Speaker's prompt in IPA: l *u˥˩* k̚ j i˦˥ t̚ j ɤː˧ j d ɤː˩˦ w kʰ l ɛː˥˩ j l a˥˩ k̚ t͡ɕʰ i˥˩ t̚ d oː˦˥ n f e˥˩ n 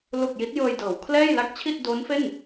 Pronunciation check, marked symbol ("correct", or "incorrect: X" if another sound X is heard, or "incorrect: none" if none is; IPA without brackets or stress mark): incorrect: u˨˩